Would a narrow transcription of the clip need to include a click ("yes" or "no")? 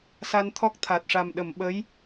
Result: no